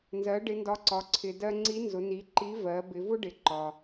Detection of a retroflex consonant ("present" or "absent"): present